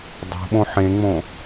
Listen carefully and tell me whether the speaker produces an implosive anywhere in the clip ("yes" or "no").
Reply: yes